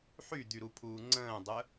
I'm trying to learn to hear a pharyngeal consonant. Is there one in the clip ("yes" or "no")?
yes